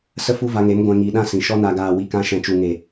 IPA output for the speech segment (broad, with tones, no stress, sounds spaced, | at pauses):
s ə˦ f u˦ v a˧ ŋ e˨˦ m ɡʷ ɛ̃˧ ŋ iː˧ ɗ ã˦ s ĩ˨ ʃ ɔ˧ n a˨ ɡ aː˨ w i˧ k ã˧ ʃ ɛ̃˨ t͡ʃ u˨ ŋ e˨